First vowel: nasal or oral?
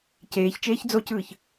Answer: oral